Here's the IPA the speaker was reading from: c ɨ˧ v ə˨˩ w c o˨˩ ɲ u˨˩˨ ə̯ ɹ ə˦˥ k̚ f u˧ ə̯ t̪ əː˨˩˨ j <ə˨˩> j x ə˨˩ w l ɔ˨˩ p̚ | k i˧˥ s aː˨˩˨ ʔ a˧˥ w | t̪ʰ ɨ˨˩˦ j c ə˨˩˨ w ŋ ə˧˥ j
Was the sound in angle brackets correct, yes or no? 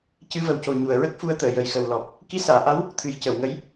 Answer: yes